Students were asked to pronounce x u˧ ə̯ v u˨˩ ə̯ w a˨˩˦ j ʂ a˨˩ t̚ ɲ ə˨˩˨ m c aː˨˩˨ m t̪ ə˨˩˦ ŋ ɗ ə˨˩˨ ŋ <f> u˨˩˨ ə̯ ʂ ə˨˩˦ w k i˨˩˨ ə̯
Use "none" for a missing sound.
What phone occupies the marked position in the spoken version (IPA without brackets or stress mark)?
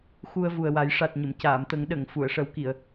f